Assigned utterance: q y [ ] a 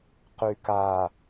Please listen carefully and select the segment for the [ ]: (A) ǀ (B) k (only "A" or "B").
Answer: B